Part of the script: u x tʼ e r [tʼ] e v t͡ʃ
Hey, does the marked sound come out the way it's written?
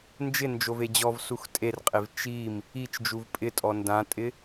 no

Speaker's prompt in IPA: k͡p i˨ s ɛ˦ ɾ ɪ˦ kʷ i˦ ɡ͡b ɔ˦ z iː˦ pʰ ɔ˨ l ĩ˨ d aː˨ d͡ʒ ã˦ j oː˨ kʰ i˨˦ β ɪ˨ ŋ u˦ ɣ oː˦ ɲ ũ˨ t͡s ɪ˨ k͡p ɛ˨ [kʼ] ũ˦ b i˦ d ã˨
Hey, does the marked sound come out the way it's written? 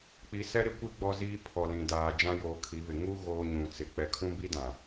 no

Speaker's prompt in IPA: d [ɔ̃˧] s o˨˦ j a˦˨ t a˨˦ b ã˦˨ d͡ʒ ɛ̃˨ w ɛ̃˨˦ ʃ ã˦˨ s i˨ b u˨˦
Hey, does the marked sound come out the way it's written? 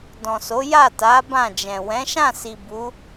no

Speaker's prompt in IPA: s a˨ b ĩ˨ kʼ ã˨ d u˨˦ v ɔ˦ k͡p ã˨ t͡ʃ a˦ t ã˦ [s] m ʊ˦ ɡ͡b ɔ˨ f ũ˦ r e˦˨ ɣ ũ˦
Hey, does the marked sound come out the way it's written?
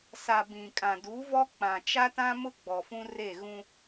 no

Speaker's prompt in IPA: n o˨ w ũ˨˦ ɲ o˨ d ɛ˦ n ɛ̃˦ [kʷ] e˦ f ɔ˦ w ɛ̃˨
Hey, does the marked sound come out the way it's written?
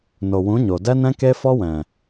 no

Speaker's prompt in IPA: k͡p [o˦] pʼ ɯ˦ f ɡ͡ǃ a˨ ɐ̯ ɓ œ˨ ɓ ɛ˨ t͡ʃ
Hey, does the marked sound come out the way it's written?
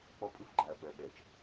no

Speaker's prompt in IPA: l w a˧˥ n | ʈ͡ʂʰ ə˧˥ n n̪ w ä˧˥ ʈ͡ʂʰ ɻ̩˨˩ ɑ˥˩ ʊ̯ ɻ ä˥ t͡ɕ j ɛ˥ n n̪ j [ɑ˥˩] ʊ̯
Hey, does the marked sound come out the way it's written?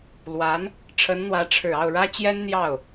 yes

